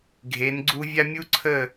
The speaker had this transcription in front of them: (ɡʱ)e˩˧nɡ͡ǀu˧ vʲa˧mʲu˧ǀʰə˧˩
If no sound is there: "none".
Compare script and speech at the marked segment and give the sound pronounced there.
ɡʱ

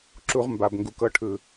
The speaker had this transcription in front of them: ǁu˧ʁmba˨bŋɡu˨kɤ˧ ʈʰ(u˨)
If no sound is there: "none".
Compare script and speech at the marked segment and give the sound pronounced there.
ɯ˨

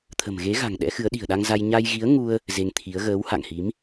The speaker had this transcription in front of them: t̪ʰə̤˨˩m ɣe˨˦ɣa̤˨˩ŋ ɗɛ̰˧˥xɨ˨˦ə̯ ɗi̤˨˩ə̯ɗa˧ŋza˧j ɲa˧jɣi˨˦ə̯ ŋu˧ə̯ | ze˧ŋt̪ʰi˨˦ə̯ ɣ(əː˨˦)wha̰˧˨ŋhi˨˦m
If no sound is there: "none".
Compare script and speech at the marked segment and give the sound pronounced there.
əː˨˦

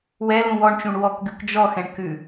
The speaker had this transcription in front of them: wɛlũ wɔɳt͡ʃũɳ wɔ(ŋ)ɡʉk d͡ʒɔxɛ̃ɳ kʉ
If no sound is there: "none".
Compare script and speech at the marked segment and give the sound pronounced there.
k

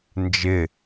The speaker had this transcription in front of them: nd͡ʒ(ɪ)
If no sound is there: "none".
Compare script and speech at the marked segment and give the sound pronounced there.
ɪ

